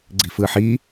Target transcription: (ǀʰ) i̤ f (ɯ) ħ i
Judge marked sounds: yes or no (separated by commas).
no, yes